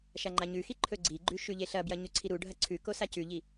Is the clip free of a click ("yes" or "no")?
no